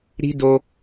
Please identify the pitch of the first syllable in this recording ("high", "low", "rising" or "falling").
high